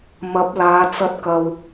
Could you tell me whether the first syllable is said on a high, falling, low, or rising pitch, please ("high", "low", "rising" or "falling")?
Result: rising